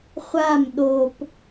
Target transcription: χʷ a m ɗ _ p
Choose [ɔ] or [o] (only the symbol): o